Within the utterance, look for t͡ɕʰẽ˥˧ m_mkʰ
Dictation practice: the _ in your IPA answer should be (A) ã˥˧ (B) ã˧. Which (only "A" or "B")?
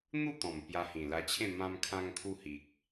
B